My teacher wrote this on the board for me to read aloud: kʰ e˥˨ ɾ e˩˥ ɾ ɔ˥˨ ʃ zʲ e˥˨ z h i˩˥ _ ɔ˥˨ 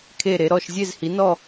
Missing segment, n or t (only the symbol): n